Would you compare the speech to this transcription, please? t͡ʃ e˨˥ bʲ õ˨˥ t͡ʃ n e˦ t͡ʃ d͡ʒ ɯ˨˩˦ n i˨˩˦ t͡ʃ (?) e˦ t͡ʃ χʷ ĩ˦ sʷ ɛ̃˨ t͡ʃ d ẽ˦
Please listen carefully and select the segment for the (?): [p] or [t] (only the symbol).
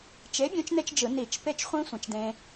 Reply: p